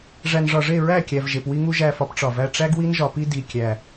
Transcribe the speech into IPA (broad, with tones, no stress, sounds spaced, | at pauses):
ʐ æ˨ n ʐ ɒ˨ ʐ e˦˨ ɹ æ˦˨ kʲ æ˨ v ʒ e˨ p w i˦ ŋ u˦ ʒ æ˦˨ f ɒ˦ p ʈ͡ʂ ɒ˨ v æ˦ ʈ͡ʂ æ˦ ɡ w i˦ n ʒ ɒ˨ p i˦ d i˨ kʲ æ˨